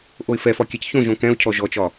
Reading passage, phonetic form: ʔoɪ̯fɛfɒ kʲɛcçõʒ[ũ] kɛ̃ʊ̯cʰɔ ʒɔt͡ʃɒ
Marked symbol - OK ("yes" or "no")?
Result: no